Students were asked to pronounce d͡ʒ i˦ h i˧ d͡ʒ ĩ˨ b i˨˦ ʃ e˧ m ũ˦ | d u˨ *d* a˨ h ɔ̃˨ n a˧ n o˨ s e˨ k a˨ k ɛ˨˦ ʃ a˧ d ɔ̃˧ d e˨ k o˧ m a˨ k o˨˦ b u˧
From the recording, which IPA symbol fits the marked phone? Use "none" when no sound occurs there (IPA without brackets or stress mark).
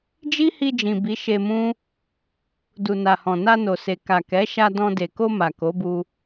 n